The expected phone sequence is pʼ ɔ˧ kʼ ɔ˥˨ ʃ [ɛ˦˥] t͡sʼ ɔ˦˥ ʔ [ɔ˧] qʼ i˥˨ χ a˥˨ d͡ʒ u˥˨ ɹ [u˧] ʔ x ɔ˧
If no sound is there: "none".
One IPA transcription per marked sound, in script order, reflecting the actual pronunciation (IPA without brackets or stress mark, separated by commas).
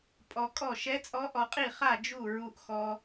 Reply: ɛ˦˥, ɔ˧, u˧